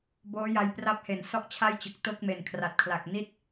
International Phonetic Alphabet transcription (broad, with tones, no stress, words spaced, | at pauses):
boː˦˥ja˧j pra˦˥p̚he˨˩n sɔ˥˩ʔt͡ɕʰa˥˩jt͡ɕɯ˨˩k̚ to˥˩k̚me˩˦nkʰra˨˩t̚kʰla˨˩k̚ ni˥˩t̚